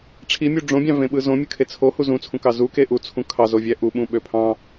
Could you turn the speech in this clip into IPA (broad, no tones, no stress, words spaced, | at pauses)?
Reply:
ʈ͡ʂʰimʲu ɖ͡ʐõbʲɑ̃vẽɓɯ zõmʲɯkʰe t͡sʰohu zũt͡sʰũkɑ zuke ʔut͡sʰũ kʰɑzovʲæ ʔuɓũɓø pʰɑ̃